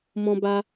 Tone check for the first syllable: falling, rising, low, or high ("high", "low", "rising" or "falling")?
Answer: high